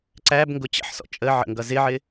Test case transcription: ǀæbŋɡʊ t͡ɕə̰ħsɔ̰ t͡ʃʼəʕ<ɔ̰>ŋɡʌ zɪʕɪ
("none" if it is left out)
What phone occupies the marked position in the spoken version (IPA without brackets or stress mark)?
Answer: ə̰